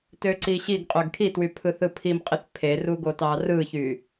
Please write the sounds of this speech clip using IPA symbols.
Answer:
t ø ǀ i ɕ i ɡ qʼ ø ɡ kʰ i t w y pʰ ɯ θ ɯ pʰ i m qʼ i θ pʰ e r u ɡ o t ɑ r ɯ ç y

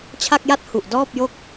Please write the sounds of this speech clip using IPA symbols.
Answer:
t͡ɕʰ a˥˩ k̚ j a˥˩ t̚ h u˨˩ ʔ d ɔː˥˩ p̚ j o˥˩ k̚

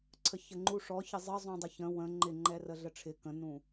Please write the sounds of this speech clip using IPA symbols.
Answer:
ǀʰ ə ç ə ŋ͡ǃ u ʂ ɔ ç ɪ zˤ ə zˤ ũ dˤ ɪ ç ə̃ w ə̃ ŋ͡ǃ ɪ ŋ͡ǃ ɛ r ə ɮ ə ʈ͡ʂʰ ɪ k ə̃ n ũ

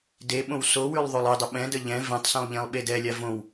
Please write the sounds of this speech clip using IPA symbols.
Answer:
d e ɓ õ w s o w ʉ lˠ ðˤ o lˠ e dˤ ə ɓ ɛ̃ d ə ʎ ɛ̃ v ɛ̃ tˤ s õ lˠ ʎ ẽ lˠ ɓ e d ɛ lʲ a v õ w

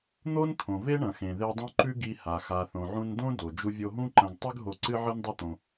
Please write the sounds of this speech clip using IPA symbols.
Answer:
n̪ o˦ n t̪ʰ õ˨ v e˦ ɳ ɐ̃˨ x ẽ˨ ð e˧ dˤ ũ˦ ǃ ʉ˦ ɡ i˧ h a˨ x a˨ θ õ˨ ʕ ũ˧ n d õ˦ d o˨ d͡ʒ u˧ vʲ o˧ ɦ ũ˦ ǃ ɐ̃˧ ɡ tˤ ʉ˦ ɡ ɦ o˧ ǀ ɨ˦ ʕ ɨ˦ n dˤ u˦ t̪ õ˧

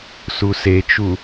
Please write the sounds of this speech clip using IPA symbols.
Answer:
s u s e t͡ʃ u

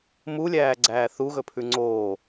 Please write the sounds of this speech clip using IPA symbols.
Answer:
m u lʲ æː ɡ͡ǀ æː θ u ɣ ɵ pʰ ʉ ŋ͡ǀ oː

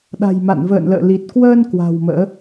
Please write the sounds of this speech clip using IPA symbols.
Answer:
ɗ a̤˨˩ j m a̰˧˨ n v ə̰ː˧˨ n l ə̰ː˧˨ l i˨˩ t̚ k w əː˧ n k w a̤˨˩ w m ə̰ː˧˥

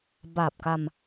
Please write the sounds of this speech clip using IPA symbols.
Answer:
b a˨˩ p̚ k a˧ m

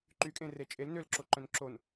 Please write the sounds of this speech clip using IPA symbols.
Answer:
ǃ y kʼ ẽ r e t͡ʃʼ e l n ø l ǁ o ǃ œ̃ n ǁ o n

